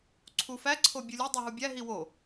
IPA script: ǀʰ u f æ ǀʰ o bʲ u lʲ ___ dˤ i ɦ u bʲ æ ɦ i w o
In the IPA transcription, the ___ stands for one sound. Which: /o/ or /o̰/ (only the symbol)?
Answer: o